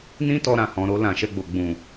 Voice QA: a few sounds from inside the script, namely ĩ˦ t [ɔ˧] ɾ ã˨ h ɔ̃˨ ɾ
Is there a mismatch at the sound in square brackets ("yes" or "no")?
no